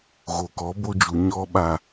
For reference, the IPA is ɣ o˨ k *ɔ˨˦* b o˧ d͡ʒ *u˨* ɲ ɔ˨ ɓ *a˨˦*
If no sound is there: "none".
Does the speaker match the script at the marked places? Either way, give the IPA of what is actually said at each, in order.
ɔ˨˦, u˨, a˨

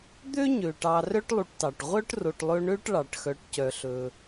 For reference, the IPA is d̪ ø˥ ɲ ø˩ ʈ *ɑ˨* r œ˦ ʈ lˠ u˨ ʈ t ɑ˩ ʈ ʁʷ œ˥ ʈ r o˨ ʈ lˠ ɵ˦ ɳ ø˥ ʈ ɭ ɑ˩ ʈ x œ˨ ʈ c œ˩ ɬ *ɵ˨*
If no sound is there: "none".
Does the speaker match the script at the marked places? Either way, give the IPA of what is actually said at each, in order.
ɑ˨, ɵ˩

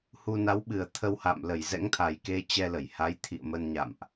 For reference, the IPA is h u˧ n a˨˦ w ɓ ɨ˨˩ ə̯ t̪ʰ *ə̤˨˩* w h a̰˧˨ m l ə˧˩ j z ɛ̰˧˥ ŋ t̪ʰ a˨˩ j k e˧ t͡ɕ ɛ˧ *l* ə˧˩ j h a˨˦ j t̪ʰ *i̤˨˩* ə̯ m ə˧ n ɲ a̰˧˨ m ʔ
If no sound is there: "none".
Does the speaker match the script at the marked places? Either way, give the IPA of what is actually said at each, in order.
ə˧, l, ḭ˧˨

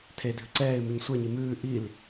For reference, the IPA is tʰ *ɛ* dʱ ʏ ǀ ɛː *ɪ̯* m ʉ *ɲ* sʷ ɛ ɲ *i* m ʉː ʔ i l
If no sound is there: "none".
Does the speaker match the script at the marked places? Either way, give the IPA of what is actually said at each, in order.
e, ɪ̯, ɲ, i

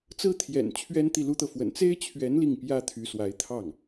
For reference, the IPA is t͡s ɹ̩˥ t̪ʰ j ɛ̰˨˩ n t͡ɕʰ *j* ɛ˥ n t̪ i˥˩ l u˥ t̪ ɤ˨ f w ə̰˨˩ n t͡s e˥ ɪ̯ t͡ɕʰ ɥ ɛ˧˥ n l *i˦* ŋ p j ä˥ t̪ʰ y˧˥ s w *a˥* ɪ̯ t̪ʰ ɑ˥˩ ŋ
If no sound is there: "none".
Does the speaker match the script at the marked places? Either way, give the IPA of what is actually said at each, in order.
ɥ, i˥˩, a˧˥

